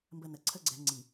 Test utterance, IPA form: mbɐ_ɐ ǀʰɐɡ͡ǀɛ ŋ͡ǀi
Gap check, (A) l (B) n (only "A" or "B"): B